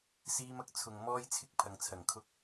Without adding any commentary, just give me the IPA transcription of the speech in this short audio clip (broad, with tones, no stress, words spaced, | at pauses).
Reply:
siː˥mɐ˥k̚ t͡sʰʊ˨ŋ mɔː˥jt͡sʰɪ˥k̚ pʰɐ˨ŋt͡sʰɐ˨˩ŋkʰʊ˥k̚